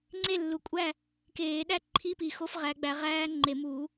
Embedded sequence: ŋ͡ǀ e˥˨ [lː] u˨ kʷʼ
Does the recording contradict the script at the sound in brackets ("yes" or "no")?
no